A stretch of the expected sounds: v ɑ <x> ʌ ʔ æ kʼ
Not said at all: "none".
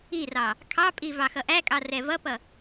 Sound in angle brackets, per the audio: x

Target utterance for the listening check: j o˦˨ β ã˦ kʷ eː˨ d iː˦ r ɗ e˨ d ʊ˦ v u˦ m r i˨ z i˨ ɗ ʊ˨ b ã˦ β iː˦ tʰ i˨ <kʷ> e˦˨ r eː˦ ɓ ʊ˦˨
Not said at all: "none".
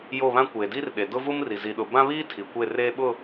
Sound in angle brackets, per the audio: kʷ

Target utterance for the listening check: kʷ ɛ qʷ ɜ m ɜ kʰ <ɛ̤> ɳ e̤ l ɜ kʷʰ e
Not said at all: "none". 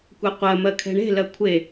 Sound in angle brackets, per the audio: ɛ̤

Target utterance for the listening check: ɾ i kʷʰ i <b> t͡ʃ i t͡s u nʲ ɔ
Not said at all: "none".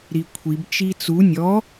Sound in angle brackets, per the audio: b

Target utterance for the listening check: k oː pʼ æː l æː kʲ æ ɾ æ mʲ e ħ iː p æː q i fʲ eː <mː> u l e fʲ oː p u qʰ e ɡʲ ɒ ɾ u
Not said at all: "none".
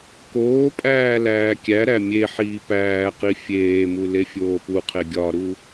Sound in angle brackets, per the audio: m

